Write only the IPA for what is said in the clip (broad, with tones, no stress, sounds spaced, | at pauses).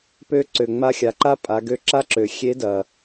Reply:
p ø˧ ǀ ø˩ ŋ͡m a˧ xʲ a˩ ǃ a˥ pʼ a˩˧ ɡ ø˧˥ ǁ a˥ ǁ ø˩ xʲ e˧˥ d ɐ˩